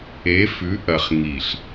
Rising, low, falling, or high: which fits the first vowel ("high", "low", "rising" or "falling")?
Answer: rising